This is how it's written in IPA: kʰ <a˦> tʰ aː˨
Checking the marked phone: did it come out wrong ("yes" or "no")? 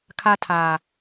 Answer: no